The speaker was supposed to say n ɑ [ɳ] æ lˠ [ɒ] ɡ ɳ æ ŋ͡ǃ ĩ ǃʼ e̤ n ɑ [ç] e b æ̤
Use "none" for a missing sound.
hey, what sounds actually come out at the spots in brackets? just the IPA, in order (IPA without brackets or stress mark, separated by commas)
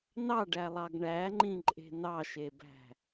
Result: ɖ, ɑ, ʃ